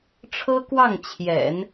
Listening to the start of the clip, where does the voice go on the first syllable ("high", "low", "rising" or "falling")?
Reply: high